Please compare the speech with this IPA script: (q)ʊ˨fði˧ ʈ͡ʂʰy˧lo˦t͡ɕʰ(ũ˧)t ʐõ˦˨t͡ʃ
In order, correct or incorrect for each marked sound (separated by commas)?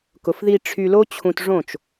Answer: incorrect, correct